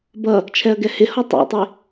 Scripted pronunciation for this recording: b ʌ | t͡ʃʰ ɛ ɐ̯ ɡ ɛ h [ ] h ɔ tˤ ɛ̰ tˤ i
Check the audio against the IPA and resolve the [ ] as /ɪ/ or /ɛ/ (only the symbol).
ɪ